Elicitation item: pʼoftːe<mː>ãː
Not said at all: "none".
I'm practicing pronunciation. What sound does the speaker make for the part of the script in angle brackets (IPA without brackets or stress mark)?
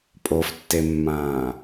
mː